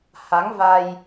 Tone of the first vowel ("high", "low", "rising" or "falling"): rising